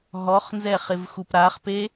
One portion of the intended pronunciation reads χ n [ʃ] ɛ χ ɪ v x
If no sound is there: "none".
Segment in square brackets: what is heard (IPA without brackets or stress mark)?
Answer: z